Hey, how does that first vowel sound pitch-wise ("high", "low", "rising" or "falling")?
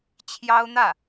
high